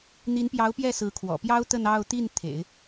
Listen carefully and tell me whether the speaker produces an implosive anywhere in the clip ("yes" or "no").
no